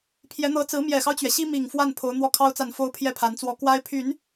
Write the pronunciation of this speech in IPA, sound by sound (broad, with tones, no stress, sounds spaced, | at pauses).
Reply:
pʰ j ɛ˧˥ n̪ ɤ˧˥ t͡s ɹ̩˧˥ m j ɛ˨˩ x ɑ˦ ʊ̯ t͡ɕ ɥ ɛ˩ ɕ i˥ m i˨˩ ŋ f w a˥˩ n pʰ o˧˥ ʊ̯ n̪ w ɔ˥˩ kʰ ɑ˥ ʊ̯ t͡s a˥˩ n f o˥ ʊ̯ pʰ j ɛ˥˩ pʰ a˧˥ n t͡s w ɔ˧˥ k w a˥ ɪ̯ pʰ y˨˩˦ n